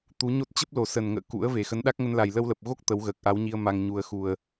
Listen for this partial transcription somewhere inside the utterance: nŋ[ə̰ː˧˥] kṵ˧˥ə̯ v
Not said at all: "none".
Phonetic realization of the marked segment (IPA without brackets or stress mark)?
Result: ə̰ː˧˨